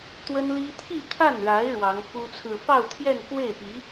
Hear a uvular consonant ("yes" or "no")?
no